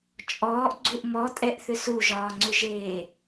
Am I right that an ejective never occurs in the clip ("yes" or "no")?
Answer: no